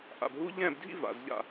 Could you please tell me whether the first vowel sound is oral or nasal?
oral